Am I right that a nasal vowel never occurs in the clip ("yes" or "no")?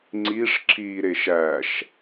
yes